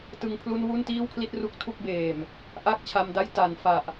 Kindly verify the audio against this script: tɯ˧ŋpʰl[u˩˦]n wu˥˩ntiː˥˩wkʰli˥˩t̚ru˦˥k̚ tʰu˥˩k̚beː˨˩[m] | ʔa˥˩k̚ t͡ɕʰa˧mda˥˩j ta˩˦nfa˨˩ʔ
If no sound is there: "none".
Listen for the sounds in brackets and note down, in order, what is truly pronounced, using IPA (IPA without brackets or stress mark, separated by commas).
u˥˩, m